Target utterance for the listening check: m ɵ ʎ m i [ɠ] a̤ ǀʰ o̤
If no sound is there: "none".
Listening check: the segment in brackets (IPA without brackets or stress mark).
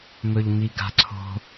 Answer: ɡ